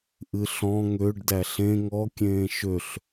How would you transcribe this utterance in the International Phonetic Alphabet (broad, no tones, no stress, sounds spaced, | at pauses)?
ʔ ɨ ɬ ɔ̃ ŋ ø ɖ d æ ɬ ẽ ŋ ɔ kʲ ẽː ʃ ø ɬ